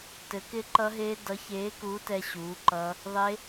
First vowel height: mid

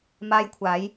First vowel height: low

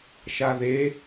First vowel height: low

